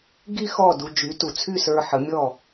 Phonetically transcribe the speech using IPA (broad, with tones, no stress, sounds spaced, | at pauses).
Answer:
ɡ i˥ x ɔ˥˩ d u˧ d͡ʒ y˩˥ t u˩ t͡sʰ y˥˩ s ə˞˧ ħ ə˩˥ mʲ ɔ˥˩